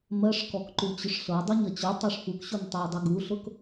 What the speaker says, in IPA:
mɜʂkɔkǃut͡ɕʊʂ ɬɤdˤuɲɜ t͡ɕotˤɤʂ fukɕuntˤue̯dˤe ɡuɬʊk

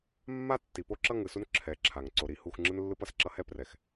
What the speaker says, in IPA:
mːa˦tːi˨ po˦ǁʌ˦ ŋɯ˨su˦n ǁʰɛ˨˦ǁʰa˨ŋ ǀo˨ɾi˨ hu˦˨xŋ͡ǁɯ˦nlːɯ˦p ʌ˨sǁʌ˦hɛ˦ prɛ˨x

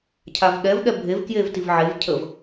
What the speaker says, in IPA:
cʰavɠɛv ɠɛbʱev kjevtivʕev cʰəv

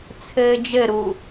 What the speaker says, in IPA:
t͡sʰɘːd͡ʒɘ ɾu

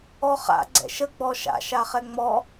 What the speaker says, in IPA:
ɔχa̰ ɡ͡ǀɛ̰ʃə ɡ͡bɔʃa̰ ʃaχɛŋ͡mɔ

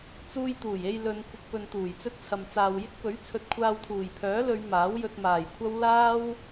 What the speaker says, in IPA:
t͡suː˧jt̪uː˨˩je˧j lɵ˨˧n kʷɪ˧k̚pɵ˧nt̪uː˨˩j t͡sɵ˥t̚t͡sʰɐ˨m t͡saː˨wjɪ˥k̚pɵ˨˥ɥ t͡sʰɵ˧t̚kʷʰaː˧w t̪ʰuː˨˩jpʰœː˨˥lɵ˨˧ɥ maː˨˥wjɵ˧t̚maː˨˩jkʷʰɐ˥w laː˥w

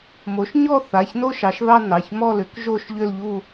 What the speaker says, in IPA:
mo˩˥ʃɲɔ˥˧θa˩˧˩ç no˥˧ʃɑ˩˥ʃðɑ˥˧ nɑ˩˧˩çmɔ˥˧ lʏ˩˥k ʒo˥˧ʃʎʏ˥˧lʎu˥˧

